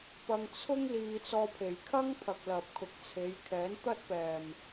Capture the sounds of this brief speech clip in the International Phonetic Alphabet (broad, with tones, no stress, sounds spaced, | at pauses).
p ɐ˧ ŋ t͡sʰ ʊ˥ ŋ l iː˧ t͡s ɔː˧ pʰ e˨ j kʰ ɐ˥ ŋ pʰ ɐ˨ k̚ l ɐ˨ p̚ kʰ ʊ˨ k̚ t͡sʰ e˨˧ j kʰ ɛː˨˥ n t̪ ɐ˥ t̚ p ɛː˨ m